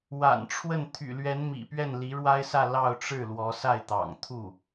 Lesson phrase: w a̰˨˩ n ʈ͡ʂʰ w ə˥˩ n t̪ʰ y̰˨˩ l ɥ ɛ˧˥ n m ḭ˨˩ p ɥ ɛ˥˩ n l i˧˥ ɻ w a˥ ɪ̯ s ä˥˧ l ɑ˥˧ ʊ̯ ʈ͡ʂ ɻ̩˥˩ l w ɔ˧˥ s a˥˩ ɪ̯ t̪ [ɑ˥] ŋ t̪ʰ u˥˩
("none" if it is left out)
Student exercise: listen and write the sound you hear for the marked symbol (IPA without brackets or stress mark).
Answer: ɑ̰˨˩